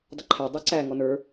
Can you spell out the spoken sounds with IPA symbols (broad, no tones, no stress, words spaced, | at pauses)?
dˤəǃʰæ dˤɛǀæ ŋɔnə˞